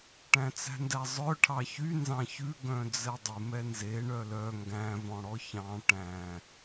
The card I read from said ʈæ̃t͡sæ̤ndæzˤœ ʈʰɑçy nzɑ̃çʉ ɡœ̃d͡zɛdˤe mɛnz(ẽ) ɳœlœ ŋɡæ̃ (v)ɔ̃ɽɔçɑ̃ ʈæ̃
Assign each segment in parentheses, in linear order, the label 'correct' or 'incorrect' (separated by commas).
incorrect, correct